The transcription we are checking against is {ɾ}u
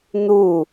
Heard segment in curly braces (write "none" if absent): n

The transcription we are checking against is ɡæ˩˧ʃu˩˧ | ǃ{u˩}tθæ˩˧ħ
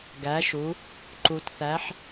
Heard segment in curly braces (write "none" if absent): u˩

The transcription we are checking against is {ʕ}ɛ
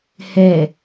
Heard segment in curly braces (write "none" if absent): h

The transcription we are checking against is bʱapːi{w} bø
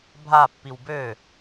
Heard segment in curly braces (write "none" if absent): w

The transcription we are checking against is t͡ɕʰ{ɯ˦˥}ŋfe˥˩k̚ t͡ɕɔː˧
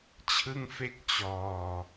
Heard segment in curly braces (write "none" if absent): ɯ˥˩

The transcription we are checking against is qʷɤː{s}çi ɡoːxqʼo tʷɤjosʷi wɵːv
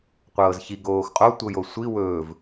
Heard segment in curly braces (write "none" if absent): z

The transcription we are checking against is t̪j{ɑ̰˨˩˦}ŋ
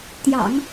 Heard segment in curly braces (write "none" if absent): ɑ̰˨˩˦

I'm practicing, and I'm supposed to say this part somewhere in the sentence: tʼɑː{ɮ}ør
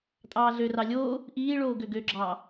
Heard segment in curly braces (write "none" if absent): ɮ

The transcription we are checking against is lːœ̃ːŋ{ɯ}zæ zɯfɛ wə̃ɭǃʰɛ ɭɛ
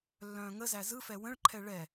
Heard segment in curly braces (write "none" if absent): ə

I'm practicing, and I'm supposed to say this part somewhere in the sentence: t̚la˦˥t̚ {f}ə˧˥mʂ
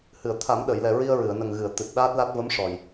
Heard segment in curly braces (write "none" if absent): v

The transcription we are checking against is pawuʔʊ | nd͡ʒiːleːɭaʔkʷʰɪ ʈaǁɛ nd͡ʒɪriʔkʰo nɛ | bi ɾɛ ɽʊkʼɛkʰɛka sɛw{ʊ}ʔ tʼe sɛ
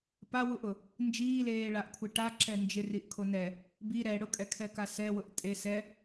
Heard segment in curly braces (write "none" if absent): ʊ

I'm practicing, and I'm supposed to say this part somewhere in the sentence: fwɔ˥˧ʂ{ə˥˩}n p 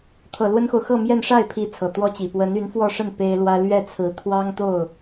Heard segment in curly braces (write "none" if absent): ə˥˩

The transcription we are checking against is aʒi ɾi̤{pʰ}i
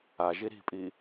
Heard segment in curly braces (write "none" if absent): pʼ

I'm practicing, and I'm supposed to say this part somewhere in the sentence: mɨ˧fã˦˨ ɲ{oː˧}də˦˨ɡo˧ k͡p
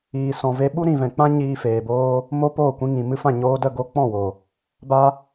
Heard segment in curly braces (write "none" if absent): oː˧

